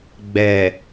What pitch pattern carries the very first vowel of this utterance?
low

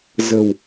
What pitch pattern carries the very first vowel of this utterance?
low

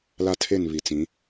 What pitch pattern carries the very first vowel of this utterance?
high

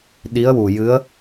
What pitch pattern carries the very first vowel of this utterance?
rising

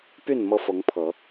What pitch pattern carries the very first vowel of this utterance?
falling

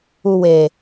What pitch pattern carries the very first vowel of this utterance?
low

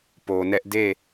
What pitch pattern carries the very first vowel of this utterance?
low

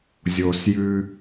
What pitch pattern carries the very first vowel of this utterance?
low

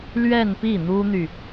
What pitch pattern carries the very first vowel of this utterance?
falling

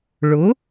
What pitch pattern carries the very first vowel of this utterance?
rising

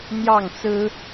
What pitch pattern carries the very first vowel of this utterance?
falling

